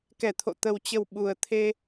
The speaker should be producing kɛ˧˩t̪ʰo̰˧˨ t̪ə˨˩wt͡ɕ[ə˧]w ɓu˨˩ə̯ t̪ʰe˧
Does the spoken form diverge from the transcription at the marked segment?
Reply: yes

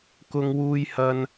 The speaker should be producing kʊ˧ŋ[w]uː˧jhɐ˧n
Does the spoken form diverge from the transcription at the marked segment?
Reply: no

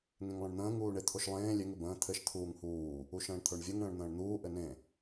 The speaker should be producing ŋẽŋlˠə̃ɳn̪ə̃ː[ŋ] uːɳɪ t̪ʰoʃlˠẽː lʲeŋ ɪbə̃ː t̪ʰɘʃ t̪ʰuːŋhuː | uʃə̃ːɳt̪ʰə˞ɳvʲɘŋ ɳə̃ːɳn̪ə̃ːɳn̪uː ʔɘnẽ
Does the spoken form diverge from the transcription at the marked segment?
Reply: no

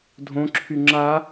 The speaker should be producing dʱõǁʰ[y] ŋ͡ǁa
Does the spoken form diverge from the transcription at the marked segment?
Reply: no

